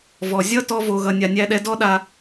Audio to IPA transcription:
vɔ˨ zʲʌ˦ tɔ˦vo˧ɣʌ˧ nʲa˧nʲæ˦ɗɛ˦ dɔ˦ɗa˧

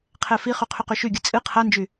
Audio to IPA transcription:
qʰɛfiχy qʰyqyʃyɡʲɨ t͡sʼɨ qʰand͡ʒy

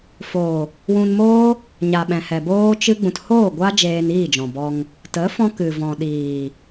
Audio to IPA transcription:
foː˨ | wũ˧nmoː˦ | ɲa˨ɓɛ̃˨hɛ˨ boː˦t͡ʃɨ˦ ɡ͡bũ˨thoː˦˨ ɡʷa˦ d͡ʒeː˧niː˦˨d͡ʒɔ̃˨ bɔ˧ŋ | tə˨˦fɔ̃˧ kɨ˨vɔ̃˨ ɗiː˨

